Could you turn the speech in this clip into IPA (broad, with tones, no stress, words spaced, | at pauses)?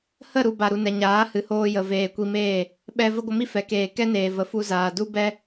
hə˦˨ɾu˨ ba˨ɾu˨nɛ˨ ɲaː˨˦hɨ˨hoː˧ jə˨veː˨kʷi˧meː˦˨ | ɓɛ˧ və˦ɡʷə˧mi˦ fɛ˨keː˨ kɛ˦neː˨ və˨ fu˧zaː˨ du˦bɛ˦